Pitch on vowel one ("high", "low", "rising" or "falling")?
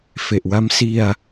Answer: low